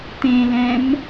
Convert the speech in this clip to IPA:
t̪ ẽ l ɛ̃ m

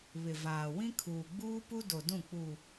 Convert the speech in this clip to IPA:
β ɪ˨ v aː˨ w ĩ˦ kʰ uː˨ ɡ͡b uː˦ p u˦ d o˨ d ũ˦˨ k͡p u˨

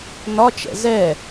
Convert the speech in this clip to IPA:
n ɒ t͡ʃ ɛ̰ z ɛ

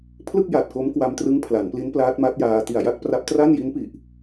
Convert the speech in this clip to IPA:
pʰ l ɯ˥˩ k̚ j a˨˩ t̚ k o˦˥ m k w a˧ m t r ɯ˦˥ ŋ pʰ l a˩˦ n p l i˦˥ n p l aː˦˥ t̚ m a˦˥ t̚ j aː˧ t i˨˩ a̯ j a˥˩ k̚ p r a˦˥ p̚ t r a˥˩ n j i˦˥ n p i˨˩ ʔ

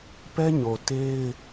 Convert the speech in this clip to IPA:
p ɛ˦ ɲ o˨ t e˦ ɪ̯

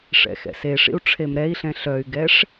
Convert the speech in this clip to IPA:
ʂ ɛ̰ x ɛ̰ s e ʂ ḭ u̯ ʈ͡ʂʰ e m ɾ ɛ i̯ ɬ ɛ̃ ɬ œ y̯ ɡ ɛ ʂ

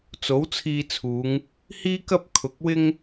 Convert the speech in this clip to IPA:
t͡s o˨˥ w t͡sʰ iː˧ t͡sʰ uː˨˧ ŋ | h iː˥ k ɐ˥ p̚ kʰ ʊ˨˥ k̚ w ɪ˥ ŋ

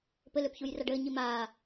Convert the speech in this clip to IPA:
p ɘ l ø p ç u j r a ɖ ɘː ɲ i m aː

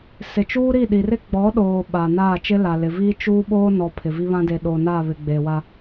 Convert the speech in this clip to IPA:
s ɪ˨ t͡ʃ uː˦ ɾ i˦˨ ɗ i˨ r ɪ˦ ɡ͡b ɔ˨˦ ɗ oː˨ ɓ aː˨ n aː˦˨ t͡ʃ ɪ˦ l a˨ l ɪ˨ v iː˦ t͡ʃ uː˦ ɓ oː˦ n ɔ˨ pʰ ɪ˨ v i˦ β ã˦ d e˨ ɗ oː˨ n aː˦˨ β ɪ˨ ɡ͡b e˨ w a˦

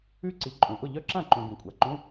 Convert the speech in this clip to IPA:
ʉ˦˥ ǀ i˩˧ ǃʼ ũ˩ ʔ ʊ˥˩ ʎ œ˦˥ ǁ ã˥˩ ǃ ũ˩ ɡ ũ˩ kʷʼ a˩ ǃ ũ˧˥˧

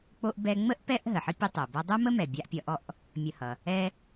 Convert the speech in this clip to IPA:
k͡p o˦ ʔ b ɛ˦ ŋ͡m ə˥ ʔ p ɛ˦ ʔ ɦ ə˩ ħ ə˥ pʲ ə˦ tˤ o˩ b ʌ˦ dˤ o˥ m ə˥ m ɛ˨ bʲ a˦ ʔ pʲ ʌ˦ ʔ ɔ˥ ʔ | mʲ ə˨ h ʌ˩ | ɛ˦

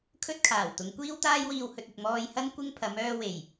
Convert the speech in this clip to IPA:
kʰ ɵ˥ t̚ kʰ aː˨˩ w t̪ ʊ˨˧ ŋ kʷ iː˥ w t̪ aː˥ j w iː˧ w h ɵ˧ t̚ ɪ˨ k̚ m ɔː˧ j h ɐ˥ n kʷ ɪ˥ ŋ pʰ ɐ˨˥ m œː˥ w e˨˩ j

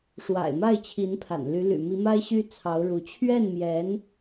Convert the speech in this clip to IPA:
ʂ w a̰˨˩ ɪ̯ m a˥˩ ɪ̯ t͡ɕʰ i˧˥ n pʰ a̰˨˩ n l y˧˥ l y̰˨˩ m i˧˥ m a˥ ɪ̯ ɕ y˥ t͡sʰ ɑ˧˥ ʊ̯ ɻ u˧˥ t͡ɕʰ ɥ ɛ˥˩ n m j ɛ˧˥ n

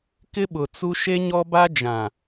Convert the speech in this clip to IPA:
k ɪ˦ ɓ ʊ˨ t͡s u˦ ʃ e˦ ɲ ɔ˦ b a˦ d͡ʒ ã˨

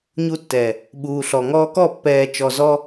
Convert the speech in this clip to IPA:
ɲ u˧ tː ɛ˨ | ɓ uː˨ ɬ ɔ˨ ŋ ɔː˧ k ɔ˦˨ pː ɛː˨ t͡ʃ ɔ˨ z ɔ˧

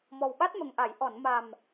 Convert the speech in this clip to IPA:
m ɔ˨˩ w ɓ a˦˥ t̚ m ə˨˩ ŋ ʔ a˨˩˨ j ʔ ɔ˨˩˨ n m a˨˩ m

